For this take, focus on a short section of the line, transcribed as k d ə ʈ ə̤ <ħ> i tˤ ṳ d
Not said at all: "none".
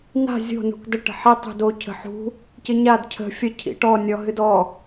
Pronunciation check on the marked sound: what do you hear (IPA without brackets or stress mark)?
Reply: ħ